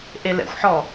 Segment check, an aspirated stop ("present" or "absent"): absent